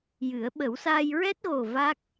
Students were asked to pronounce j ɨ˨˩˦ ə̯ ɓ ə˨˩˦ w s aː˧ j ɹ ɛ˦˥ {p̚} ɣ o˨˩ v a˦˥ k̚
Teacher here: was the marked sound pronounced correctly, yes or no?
no